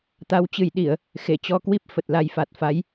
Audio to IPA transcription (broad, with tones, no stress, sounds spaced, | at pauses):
t̪ a˨˦ w t͡ɕ ɨ˧˩ j ɗ i˧˩˨ ə̯ | x e˧˩ t͡ɕ ɔ˧ k w i˦˥ p̚ f ə˨˩ t̚ l a˧ j f a˨˩ t̚ f a˨˦ j